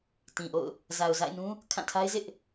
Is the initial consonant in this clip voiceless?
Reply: yes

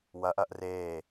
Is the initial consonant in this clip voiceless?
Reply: no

